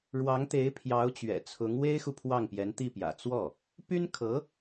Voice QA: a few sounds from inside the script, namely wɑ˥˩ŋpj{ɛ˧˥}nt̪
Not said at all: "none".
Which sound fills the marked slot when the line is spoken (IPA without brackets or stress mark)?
ɛ˧˥